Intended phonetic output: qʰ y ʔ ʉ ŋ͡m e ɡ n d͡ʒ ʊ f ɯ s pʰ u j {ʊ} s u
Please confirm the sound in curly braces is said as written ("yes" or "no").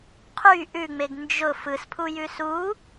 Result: no